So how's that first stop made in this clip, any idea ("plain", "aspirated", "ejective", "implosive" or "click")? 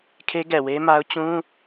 aspirated